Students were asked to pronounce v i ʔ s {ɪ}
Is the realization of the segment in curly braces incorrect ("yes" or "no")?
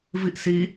yes